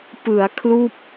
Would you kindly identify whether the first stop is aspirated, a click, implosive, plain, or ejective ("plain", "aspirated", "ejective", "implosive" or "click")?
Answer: plain